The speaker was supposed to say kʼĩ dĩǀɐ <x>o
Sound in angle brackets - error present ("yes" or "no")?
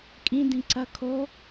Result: yes